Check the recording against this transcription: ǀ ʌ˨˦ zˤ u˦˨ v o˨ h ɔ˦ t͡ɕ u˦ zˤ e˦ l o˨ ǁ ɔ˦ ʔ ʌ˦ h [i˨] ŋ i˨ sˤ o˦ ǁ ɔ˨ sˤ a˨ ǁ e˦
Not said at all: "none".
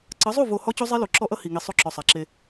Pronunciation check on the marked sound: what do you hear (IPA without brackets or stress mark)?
i˨